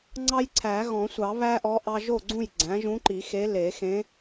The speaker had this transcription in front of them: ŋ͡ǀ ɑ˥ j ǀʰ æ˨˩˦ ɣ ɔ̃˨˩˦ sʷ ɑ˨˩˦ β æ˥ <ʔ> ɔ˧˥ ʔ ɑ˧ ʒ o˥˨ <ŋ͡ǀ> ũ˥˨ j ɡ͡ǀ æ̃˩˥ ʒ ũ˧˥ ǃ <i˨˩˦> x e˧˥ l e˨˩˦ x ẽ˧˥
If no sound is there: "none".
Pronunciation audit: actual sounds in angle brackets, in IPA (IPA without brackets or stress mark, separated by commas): ʔ, ɡ͡ǀ, i˨˩˦